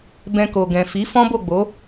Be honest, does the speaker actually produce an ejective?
no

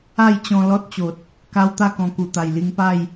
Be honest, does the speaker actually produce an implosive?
no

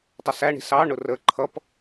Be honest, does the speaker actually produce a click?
yes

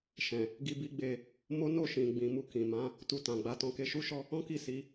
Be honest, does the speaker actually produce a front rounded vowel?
no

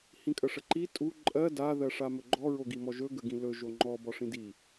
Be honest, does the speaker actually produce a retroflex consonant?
yes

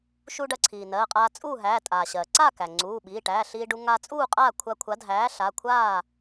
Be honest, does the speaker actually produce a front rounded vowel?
no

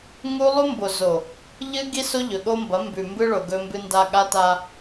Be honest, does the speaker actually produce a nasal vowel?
no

